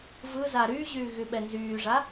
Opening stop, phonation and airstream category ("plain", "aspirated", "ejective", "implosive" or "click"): implosive